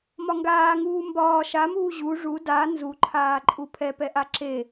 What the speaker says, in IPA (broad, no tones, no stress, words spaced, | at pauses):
mɒŋɡaː ŋuːmbɒː ʃamuː ʑu ʐu da nzuǃʰaːǃʼu pʰɛpɛʔa ǁe